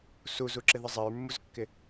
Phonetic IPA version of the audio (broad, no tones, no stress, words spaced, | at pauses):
suzuǁɪðə zˤɪɹmːuzkːɪ